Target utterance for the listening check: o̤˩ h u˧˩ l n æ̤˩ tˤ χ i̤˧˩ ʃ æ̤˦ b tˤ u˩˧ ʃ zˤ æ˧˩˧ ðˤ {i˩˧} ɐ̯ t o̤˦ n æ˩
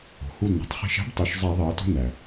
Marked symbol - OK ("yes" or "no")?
yes